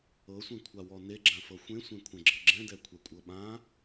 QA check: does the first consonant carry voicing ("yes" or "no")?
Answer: no